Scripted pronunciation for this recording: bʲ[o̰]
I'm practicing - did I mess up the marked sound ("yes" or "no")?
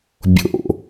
no